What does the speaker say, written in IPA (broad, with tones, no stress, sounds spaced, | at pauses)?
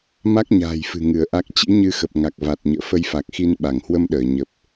m a˦˥ k̚ ɲ a̤ː˨˩ j f ɨ̤˨˩ ŋ ɨ˧˩ ə̯ ʔ a˦˥ k̚ t͡ɕ ḭ˧˥ ɲ ɨ˧ x ə˨˩ p̚ ŋ a˨˩ k̚ v a˨˩ t̚ ɲ ə̰ː˧˨ f ə˧ j f a˨˩ k̚ x i˧ n ɓ a˧˩ ŋ h w ə˧ m ɗ əː˧˩ ɲ ə˨˩ p̚